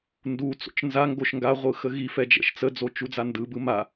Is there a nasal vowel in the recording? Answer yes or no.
no